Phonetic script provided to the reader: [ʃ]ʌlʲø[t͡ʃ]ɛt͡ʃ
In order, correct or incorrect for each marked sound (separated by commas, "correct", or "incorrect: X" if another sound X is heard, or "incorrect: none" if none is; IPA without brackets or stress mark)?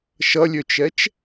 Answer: correct, correct